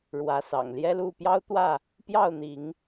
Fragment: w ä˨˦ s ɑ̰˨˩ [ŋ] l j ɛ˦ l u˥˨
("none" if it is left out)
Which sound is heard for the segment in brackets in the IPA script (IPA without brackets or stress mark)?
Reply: ŋ